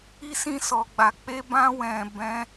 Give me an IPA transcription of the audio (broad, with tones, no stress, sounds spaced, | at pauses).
i˦ s ĩ˦˨ s ɔ˨ ɡ͡b a˨ k͡p e˧ b ã˧ w ɛ̃˨ b ɛ̃˨˦